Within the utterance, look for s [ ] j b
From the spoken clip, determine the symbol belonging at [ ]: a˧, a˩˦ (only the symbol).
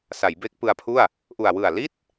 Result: a˩˦